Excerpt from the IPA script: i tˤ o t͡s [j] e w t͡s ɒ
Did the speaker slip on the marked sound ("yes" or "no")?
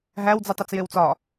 no